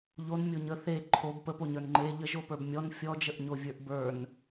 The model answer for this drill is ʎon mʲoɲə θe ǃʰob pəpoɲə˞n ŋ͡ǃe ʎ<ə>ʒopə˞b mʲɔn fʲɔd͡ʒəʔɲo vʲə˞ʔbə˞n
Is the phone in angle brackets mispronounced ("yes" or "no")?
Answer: no